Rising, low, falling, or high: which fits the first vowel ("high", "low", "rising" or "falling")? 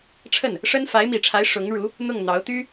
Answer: falling